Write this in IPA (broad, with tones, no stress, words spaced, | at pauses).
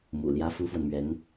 mṵ˨˩ ljä˥fu˥fwə˨nmɥɛ˧˥n